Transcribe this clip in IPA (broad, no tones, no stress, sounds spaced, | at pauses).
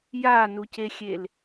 j a n u c e xʲ e l